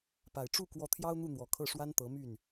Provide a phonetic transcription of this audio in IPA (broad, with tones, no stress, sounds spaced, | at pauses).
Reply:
p a˨˩ ɪ̯ ʈ͡ʂ u˥˩ k w ɔ˧˥ t̪ʰ j ɑ˥ ʊ̯ n̪ u˥˩ n̪ w ɔ˨˩ kʰ ɤ˥˩ ʂ w a˥ n t̪ ɤ˧˥ m y˥˩ n